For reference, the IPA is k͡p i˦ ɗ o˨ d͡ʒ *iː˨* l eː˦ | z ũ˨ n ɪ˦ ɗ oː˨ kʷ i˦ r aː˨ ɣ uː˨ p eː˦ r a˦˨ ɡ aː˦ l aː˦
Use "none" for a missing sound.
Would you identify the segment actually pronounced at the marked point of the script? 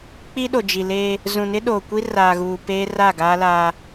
i˨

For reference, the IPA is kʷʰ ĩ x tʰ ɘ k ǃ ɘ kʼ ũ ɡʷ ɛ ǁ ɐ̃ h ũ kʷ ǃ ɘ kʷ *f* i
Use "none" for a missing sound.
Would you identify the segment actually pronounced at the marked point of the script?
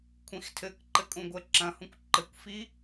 f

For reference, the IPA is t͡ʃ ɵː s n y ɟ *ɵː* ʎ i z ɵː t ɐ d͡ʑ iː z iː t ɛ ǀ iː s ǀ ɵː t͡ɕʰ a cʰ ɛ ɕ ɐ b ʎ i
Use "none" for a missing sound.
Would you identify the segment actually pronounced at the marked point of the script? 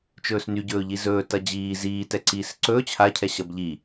ɵː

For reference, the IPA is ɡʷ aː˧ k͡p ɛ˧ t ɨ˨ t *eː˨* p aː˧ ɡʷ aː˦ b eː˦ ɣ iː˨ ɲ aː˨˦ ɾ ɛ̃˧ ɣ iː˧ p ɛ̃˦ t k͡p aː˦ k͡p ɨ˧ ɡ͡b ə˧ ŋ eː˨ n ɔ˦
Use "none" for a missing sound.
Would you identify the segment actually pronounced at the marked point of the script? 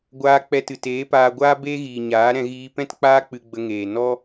eː˨˦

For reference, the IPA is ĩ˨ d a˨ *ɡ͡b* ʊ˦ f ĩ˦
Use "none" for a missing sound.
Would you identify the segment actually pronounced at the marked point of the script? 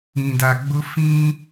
ɡ͡b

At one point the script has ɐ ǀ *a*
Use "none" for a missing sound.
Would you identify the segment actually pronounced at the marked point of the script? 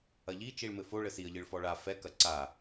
a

